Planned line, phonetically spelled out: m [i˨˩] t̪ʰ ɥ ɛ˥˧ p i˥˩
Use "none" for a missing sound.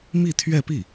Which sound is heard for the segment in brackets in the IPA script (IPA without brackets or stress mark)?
i˥˧